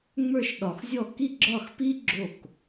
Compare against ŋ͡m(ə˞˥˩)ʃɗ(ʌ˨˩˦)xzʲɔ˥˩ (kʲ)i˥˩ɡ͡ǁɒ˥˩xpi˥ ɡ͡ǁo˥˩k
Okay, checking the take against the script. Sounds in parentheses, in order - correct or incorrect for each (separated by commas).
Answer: correct, incorrect, incorrect